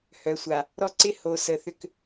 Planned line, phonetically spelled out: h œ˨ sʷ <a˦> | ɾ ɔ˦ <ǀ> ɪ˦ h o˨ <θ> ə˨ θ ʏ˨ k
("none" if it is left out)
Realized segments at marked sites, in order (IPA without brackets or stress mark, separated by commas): a˨, ǀ, s